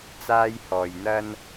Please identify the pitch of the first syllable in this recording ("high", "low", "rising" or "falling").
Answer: high